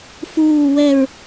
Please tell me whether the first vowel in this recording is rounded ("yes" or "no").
yes